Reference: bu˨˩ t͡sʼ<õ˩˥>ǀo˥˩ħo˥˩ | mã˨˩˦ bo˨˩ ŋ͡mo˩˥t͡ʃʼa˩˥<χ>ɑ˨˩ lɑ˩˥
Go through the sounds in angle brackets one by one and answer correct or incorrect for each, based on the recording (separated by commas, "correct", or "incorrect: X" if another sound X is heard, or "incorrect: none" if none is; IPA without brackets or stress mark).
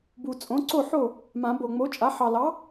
correct, incorrect: ħ